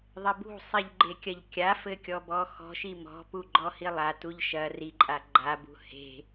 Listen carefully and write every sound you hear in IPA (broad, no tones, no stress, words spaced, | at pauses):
ðˤɘbṳsˤiʎ ɡ͡ǃekʲɐʎkʲafɘ kʲɔbɔxɔ̤ʃi mɔ̤pu ɡ͡ǃɔhilˠatuʎ ʃɐ riǃʼa ɡ͡ǃabṳ he̤